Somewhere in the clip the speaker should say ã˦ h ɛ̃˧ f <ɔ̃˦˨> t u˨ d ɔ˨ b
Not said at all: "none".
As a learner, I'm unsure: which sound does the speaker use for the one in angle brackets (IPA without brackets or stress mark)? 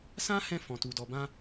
ɔ̃˨